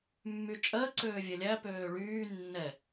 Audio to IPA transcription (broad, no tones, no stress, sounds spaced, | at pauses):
mː y t͡ʃʼ ɜ ǀ øː vʲ ɛ lʲ æ p øː ɭ yː nː ɛ